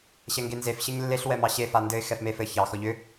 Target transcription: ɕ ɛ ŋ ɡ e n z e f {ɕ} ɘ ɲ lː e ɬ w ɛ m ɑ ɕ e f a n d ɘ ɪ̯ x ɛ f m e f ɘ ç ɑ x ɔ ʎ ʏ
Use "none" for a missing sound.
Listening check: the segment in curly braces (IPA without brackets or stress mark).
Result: ɕ